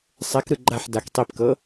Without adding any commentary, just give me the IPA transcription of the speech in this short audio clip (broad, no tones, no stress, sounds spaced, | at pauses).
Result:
sˤ ɛ k ɾ ɯ ɡ͡ǃ a ħ d a k tˤ i p k ɤ